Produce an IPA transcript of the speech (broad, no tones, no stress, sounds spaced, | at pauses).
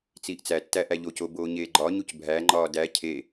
t͡s iː ʔ t͡s æ tː æ ʔ æ ʎ o c o b oː ɲ eː ɡ͡ǃ ɒ ɲ u c bʱ æ ŋ͡ǃ ɒː d æ cʰ e